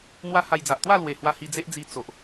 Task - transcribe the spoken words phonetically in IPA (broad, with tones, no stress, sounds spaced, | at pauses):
n̪ w a˦ h a˧ j d͡z a˨ ʔ t̪ w a˥˧ l w e˨˩ h w a˧ h i˧ d͡z e˦ ʔ d͡z i˧ t͡s o˨ ʔ